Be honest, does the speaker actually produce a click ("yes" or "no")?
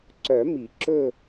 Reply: yes